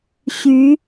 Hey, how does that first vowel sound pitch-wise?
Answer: rising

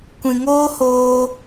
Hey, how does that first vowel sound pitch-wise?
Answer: low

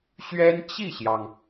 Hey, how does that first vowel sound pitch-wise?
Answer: high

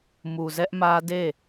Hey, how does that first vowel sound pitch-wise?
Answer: low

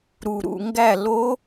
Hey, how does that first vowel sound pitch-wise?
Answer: low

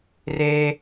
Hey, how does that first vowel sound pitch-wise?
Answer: high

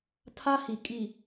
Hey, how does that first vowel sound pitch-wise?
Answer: high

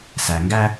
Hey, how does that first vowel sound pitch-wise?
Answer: low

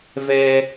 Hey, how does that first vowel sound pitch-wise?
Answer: high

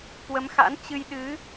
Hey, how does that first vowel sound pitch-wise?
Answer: rising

